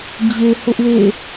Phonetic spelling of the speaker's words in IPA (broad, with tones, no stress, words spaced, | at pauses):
d͡ʑe˨hʊ˦ʔwḛ˦˨